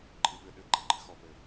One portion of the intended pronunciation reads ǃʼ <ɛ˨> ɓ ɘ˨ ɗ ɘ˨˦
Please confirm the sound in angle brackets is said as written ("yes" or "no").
no